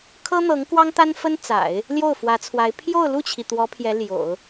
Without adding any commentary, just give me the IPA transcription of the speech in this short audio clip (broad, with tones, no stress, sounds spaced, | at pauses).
kʰ ɤ˥ n̪ ɤ˧˥ ŋ k w ɑ˥ ŋ t̪ a˥ n f ə˥ n t͡s a̰˨˩˦ ɪ̯ | l j o˥˩ ʊ̯ f w ä˧˥ t͡sʰ w a˧˥ ɪ̯ pʰ j o˥˧ ʊ̯ l u˥˩ t͡ɕʰ i˩ t̪ w ɔ˧˥ pʰ j ɛ˧˥ l j o̰˨˩˦ ʊ̯